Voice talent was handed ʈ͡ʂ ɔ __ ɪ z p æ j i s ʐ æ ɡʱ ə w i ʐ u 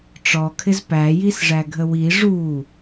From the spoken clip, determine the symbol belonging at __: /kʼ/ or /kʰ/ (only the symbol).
kʰ